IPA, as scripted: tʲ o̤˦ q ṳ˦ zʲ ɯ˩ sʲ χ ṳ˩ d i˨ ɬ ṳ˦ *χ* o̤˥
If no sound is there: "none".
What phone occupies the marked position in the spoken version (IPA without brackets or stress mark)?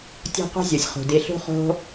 χ